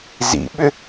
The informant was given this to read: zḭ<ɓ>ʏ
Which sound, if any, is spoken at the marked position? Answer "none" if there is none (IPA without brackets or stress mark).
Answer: ɓ